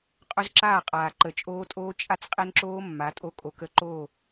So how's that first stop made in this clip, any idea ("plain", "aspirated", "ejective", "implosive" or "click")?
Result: ejective